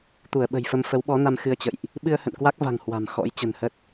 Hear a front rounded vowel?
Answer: no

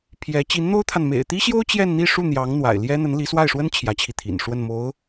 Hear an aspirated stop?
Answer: yes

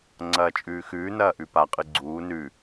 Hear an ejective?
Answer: yes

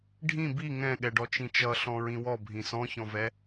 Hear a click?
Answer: no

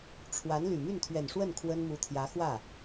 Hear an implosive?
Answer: no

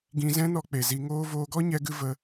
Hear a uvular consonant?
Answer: no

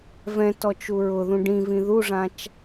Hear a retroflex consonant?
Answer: yes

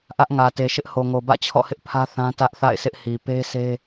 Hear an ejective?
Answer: no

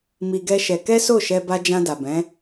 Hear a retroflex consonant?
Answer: no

